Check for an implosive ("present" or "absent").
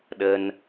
present